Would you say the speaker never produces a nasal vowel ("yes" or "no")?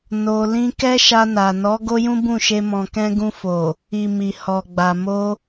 no